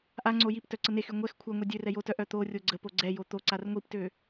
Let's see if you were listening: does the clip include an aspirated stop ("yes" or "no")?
yes